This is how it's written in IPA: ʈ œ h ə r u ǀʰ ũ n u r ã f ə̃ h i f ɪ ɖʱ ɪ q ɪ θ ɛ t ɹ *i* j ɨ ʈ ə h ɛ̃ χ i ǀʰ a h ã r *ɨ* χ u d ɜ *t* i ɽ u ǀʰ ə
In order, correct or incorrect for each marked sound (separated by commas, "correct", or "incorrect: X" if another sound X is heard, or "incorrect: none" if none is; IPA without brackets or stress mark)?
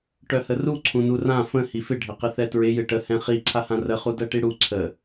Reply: incorrect: ɪ, incorrect: ə, incorrect: ʈ